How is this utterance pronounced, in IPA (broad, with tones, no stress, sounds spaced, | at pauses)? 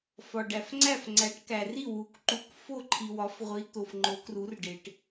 f ɒ˨ ɖ æ˨ f ŋ͡ǀ æ˥˨ f ŋ͡ǀ æ˨˥ ʈ k æ˨ r i˥˨ w u˨˥ k ǃ u˨˥ k f o˥˨ ǃʰ i˨ w ɒ˨˥ f ʁʷ i˨˥ t̪ o˨ f ŋ͡ǃ o˨˥ k r u˨˥ r ɖ e˨ ʈ